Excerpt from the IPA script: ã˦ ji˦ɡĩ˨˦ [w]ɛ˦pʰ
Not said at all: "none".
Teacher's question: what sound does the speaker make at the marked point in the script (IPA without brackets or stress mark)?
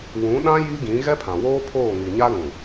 ɣ